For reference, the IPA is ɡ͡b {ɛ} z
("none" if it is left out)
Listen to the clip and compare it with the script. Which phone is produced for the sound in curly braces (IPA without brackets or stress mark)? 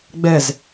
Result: ɛ